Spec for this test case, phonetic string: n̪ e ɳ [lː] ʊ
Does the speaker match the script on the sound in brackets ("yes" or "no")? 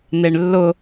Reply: yes